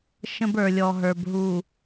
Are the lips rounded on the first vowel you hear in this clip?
no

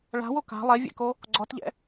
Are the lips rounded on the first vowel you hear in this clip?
no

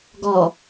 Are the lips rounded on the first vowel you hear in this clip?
yes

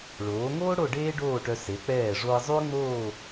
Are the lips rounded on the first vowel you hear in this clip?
yes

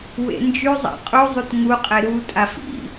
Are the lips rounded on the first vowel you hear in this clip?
no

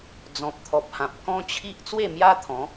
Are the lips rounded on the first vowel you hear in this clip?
yes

